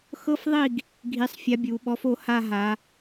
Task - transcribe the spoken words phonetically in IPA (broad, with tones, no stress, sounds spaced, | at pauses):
x ɤ˦ f ðˤ i˦˨ ɡ | ɡʱ i˨˥ sˤ fʲ a˨˥ bʲ u˩˧ ɓ ɔ˨˥ f o˦˨ h a˦˨ ɦ a˩˧